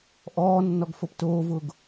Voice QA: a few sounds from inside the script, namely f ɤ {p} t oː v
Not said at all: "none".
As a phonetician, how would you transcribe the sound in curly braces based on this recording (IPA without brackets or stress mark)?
p